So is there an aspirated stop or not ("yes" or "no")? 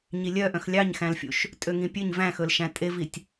no